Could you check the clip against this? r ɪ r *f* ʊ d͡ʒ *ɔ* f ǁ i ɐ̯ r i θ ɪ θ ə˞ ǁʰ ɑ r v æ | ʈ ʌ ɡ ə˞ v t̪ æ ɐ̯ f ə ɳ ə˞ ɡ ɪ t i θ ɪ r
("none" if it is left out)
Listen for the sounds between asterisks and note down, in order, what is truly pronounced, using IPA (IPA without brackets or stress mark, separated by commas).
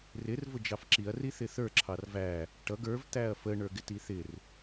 v, ɑ